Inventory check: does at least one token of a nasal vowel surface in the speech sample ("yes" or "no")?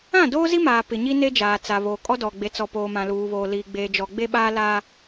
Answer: yes